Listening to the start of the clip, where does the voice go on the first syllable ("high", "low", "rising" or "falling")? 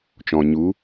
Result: low